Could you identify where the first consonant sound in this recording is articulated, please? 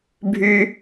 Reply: labial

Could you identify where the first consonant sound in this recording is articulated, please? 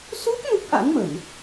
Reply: alveolar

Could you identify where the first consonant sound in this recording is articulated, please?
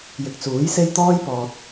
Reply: palatal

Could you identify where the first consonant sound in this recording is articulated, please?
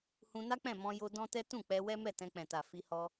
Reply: glottal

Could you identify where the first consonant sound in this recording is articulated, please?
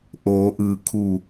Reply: glottal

